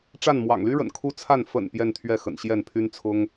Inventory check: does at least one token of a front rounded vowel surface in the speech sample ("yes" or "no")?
yes